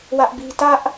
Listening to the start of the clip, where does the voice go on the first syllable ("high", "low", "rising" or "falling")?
high